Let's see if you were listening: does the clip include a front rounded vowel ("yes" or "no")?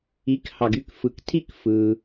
yes